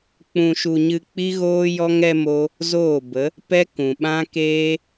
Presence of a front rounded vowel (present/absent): absent